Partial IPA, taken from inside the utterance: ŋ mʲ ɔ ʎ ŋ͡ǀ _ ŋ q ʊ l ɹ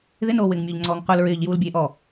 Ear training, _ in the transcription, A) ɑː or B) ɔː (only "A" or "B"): B